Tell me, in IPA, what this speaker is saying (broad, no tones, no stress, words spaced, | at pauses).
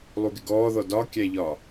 lˠuɡɪɡɔːðɔ dɒkʲæʎɒ